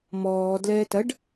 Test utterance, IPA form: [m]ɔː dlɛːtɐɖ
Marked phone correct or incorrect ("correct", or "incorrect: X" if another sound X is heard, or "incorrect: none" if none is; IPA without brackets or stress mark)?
correct